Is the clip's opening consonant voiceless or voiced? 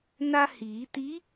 voiced